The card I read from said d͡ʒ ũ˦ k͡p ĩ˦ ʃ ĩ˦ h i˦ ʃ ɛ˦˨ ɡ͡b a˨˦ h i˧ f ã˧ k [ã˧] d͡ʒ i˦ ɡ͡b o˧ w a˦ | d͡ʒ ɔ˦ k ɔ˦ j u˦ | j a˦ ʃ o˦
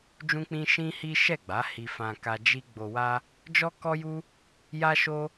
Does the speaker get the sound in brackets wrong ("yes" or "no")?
yes